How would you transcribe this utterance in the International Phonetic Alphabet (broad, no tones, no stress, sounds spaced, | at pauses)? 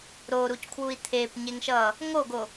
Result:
ɾ o ɾ u c kʰ w u i̯ t̪ʰ e p ɲ e ŋ ʃ ʌ | ŋ o ɡ o